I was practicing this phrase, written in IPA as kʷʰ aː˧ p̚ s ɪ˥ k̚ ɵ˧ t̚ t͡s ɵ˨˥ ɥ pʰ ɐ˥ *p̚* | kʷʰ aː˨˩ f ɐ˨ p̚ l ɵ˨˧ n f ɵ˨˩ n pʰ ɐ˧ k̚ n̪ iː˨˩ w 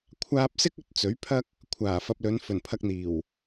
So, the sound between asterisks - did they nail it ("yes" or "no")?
no